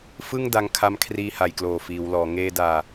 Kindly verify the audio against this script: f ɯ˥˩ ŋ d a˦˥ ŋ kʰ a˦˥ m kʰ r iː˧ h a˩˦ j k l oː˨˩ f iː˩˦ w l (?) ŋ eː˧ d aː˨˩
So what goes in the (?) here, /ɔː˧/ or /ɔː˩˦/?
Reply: ɔː˩˦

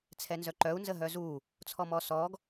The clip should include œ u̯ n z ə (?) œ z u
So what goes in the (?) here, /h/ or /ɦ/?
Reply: ɦ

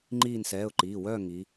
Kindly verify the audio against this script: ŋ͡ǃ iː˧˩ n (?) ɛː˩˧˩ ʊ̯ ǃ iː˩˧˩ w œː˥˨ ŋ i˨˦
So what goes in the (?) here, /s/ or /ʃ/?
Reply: s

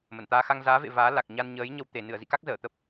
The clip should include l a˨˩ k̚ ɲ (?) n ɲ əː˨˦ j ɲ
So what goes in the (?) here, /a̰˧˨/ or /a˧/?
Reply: a˧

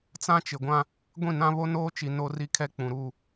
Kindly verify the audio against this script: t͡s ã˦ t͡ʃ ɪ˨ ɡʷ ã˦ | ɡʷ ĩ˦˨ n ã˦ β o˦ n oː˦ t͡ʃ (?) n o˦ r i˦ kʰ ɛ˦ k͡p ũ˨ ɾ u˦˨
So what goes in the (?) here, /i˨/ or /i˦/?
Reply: i˨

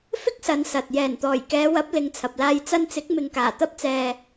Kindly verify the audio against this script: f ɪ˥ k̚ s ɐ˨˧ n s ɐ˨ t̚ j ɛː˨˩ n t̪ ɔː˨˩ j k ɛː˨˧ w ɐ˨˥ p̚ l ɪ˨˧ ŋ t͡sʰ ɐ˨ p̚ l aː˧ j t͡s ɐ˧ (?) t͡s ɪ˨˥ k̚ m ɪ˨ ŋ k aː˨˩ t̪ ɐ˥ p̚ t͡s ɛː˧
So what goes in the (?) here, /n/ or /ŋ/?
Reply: n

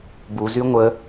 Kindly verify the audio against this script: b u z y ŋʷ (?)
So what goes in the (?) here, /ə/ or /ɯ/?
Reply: ə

